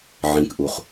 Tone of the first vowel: high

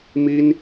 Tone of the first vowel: high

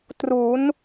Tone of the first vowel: rising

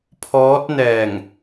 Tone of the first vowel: rising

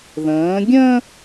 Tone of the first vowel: rising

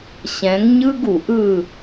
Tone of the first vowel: rising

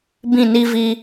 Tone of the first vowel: falling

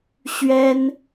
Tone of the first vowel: high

